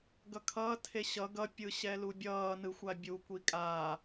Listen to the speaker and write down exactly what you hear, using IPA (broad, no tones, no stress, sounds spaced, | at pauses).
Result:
ɡ ʌ kʰ ʌː tʰ e ɕ ʌ ɡ ʌ pʲ ɯ ɕ ɛ l u bʲ ʌː n ɯ xʷ a bʲ u kʷ i kʼ aː